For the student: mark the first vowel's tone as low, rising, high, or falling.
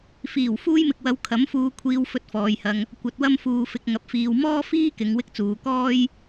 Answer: low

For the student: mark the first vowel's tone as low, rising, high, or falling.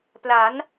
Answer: rising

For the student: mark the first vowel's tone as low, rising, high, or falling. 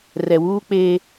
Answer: low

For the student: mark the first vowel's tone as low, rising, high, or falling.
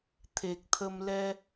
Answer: low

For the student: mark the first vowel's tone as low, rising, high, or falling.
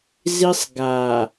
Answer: high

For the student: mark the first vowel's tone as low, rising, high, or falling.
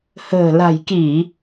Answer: low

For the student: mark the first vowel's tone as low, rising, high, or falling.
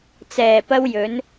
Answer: low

